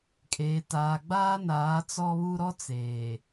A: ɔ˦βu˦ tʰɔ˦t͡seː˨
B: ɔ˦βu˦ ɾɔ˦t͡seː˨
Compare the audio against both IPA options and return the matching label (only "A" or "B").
B